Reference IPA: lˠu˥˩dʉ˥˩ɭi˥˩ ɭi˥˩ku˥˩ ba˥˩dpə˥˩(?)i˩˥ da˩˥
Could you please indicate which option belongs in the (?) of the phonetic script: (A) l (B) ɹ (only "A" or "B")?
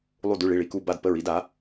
B